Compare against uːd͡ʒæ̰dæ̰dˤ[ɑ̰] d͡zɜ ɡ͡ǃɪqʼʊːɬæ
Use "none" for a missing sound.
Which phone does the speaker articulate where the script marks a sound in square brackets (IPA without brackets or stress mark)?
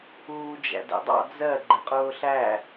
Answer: ɑ̰